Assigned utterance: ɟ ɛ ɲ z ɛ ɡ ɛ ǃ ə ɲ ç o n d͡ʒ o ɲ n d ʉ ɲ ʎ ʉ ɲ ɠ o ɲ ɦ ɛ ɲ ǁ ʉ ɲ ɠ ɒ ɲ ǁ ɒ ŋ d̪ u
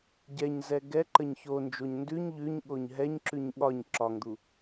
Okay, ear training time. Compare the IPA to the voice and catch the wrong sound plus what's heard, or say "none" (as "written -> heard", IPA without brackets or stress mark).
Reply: none